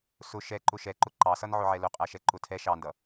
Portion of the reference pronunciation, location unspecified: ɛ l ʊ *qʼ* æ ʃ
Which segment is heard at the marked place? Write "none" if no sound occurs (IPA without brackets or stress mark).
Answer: qʼ